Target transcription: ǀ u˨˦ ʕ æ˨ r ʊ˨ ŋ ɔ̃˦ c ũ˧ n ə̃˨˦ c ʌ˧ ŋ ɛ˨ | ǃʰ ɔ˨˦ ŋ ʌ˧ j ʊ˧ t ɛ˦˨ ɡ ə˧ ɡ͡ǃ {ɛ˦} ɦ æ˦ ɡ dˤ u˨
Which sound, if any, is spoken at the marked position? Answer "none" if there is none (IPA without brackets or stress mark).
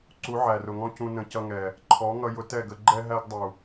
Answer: ɛ˦